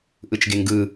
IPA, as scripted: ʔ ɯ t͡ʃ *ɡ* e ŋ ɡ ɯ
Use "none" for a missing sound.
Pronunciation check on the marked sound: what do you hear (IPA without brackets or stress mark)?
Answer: ɡ